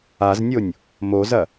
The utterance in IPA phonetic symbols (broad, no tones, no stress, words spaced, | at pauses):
aznʲonʲ | mozɐ